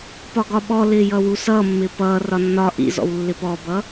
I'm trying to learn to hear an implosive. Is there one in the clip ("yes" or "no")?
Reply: yes